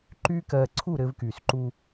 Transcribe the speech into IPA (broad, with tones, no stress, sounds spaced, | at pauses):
ǃ yː˦ k ɜː˧ ǀʰ u˦˨ ɾ ɘː˧ v k yː˨ s ǃ u˧